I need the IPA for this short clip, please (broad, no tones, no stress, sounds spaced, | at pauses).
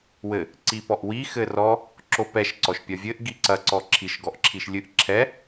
w ɘ | ǀ i p ɔ ʔ w i x ɘ r ɔ | ǁ o p ɛ ʃ ǀ ɔ ʃ pʲ ɐ vʲ ɘ ʔ ɡ i ǀ ɐ ǀ ɔ ǁʰ i ʃ ɡ ɔ ʔ ǁʰ i ʃ lʲ ɨ ʔ ǁʰ ɛ